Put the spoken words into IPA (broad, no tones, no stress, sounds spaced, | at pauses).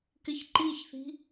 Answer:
k ɪ ç ǃ i ç θ i̤